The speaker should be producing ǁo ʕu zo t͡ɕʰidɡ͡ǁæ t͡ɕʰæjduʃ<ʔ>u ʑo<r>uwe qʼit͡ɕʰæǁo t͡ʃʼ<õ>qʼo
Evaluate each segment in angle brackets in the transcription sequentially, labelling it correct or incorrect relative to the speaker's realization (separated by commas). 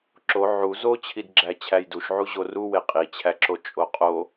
incorrect, correct, incorrect